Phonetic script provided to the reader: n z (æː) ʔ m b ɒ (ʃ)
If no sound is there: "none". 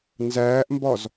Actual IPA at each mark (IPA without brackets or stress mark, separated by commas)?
æː, z